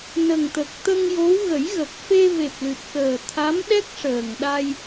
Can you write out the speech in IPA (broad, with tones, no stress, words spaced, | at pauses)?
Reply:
nə˨˩ŋt̪ə˨˩k̚ t̪ə˧ŋjo˧˥w ɣə˨˩˦jɣə˨˩k̚fe˧ ve˨˩p̚lɨ˨˩t̚kəː˨˩ t̪ʰa˧˥mɗɛ˦˥k̚ ʂəː˨˩ŋɗa˧j